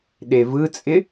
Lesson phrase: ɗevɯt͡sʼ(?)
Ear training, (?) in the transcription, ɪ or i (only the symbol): ɪ